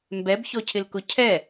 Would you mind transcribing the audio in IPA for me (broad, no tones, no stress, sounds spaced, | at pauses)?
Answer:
m b ɛ b ç ɔ cʰ ɪ l k ʊ cʰ ɛ